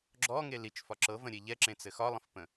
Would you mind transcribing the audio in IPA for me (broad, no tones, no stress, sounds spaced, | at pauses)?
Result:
ɡ͡ǁ ɔ ŋ e l i t͡ʃ f ɒ ǁ ɤ v ə̃ ɾʲ e ʎ ɛ ǁ ẽ t͡s ɘ x ɒ lˠ ə̃ f p ə̃